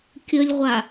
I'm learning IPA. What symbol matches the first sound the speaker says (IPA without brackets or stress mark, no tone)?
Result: kʲ